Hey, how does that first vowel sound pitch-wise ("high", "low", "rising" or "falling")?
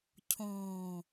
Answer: low